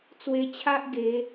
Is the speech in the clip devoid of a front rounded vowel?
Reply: yes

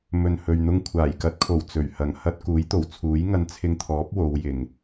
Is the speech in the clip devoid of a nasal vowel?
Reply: yes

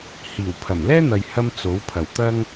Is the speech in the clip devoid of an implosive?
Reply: yes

